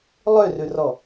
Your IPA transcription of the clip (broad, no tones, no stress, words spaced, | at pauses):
lˠørʉrɔ